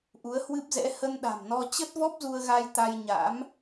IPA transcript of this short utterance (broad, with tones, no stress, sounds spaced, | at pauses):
ʔ u˨˦ ə̯ h w ɨ˦˥ p̚ z ɛ̰˧˥ h ə˧ n ɗ a̤˨˩ m n ɔ˧ t͡ɕ ə˦˥ t̚ v ɔ˦˥ p̚ z u˧ ə̯ ɣ a˧ j t̪ a˧ j ɲ a̰˧˥ m